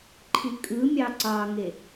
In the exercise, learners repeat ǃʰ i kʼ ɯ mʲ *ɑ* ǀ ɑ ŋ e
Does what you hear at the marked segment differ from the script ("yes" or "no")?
no